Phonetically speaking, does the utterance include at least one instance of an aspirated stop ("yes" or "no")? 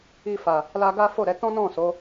no